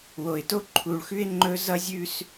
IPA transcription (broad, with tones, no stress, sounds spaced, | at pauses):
w o˨ ɪ̯ t o˦ ǃʰ u˨ ɭ x ʉ˦ ɪ̯ ŋ͡ǃ ɵ˦ z ʌ˦ zʲ ʉ˦ s